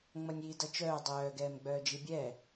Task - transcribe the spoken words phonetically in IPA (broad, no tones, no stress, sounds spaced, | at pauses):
ŋ͡m ʌ nʲ iː d ʌ t͡ʃ œː dˤ œː ɡ ɛː m ɡ͡b œː d͡ʒ i bʲ ɛː